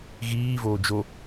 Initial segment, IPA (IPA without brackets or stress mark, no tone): ɣ